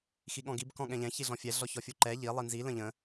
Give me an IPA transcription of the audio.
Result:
x i ɠ ɔ̃ ɡ i b k ɔ̃ ɠ ɛ̃ ʎ ɛ̃ ç i ɮ ɔ̃ fʲ ɛ ɮ ɔ ç ɔ fʲ u ǃ ɛ ʎ i lˠ i n z i l ə̃ ʎ ə̃

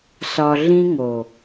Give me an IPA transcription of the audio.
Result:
s ɒ˨ ɮ ĩ˦ ŋ o˨

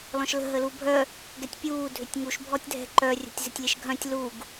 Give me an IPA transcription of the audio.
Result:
l ɔ̃ ʃ l ə̤ ɦ ə l u bʱ œ | ɡ ɛ tʲ pʲ uː dʱ ʏ tʲ ŋ u ʃ bʱ ɔ tʲ dʱ ɛ̤ ǃ œ rʲ ə̤ tʲ z ɪ tʲ lʲ ɛ ʃ ɡʱ œ̃ tʲ l u ɡ

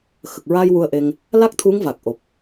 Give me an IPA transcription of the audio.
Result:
x ə˨˩ k̚ ɹ aː˧ j w u˧ ə̯ ʔ e˧ ŋ | l a˦˥ k̚ t̪ʰ u˧˥ ŋ v a˨˩ k̚ ʔ o˨˩ p̚

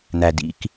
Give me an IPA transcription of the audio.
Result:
n̪ æ˨ d ḭ˦ k

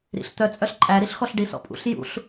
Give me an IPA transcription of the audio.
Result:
ɾ ḭ ɬ t̪ œ t͡sʼ œ ɬ ǃʼ æ ɾ i ɬ x ɔ ɬ ɖ i s ɔ̰ pʼ ṵ ɬ j ṵ ɬ

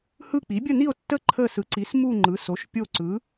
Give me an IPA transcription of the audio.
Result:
h ɯ˦˨ k͡p i˩˥ bʲ ə˦˨ n i˦˨ o̯ tː ə˦˨ ǃʰ ə˦˨ s ɯ˩˥ ǀ i˩˥ s m u˦˨ ŋ͡ǃ ɯ˩˥ s o˩˥ ʃ pʲ o˦˨ ǀ ɯ˩˥

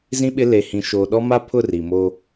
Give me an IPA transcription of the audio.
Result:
z ĩ˦ ɓ ɪ˦ l e˨ h ĩ˨ ʃ oː˨ ɗ ɔ˦ m a˦ pʰ ʊ˦˨ r i˨ m o˦

